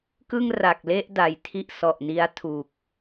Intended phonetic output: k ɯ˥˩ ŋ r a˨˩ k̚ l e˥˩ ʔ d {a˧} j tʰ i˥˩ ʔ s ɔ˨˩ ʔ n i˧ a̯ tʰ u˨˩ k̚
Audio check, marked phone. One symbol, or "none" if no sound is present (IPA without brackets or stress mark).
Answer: a˨˩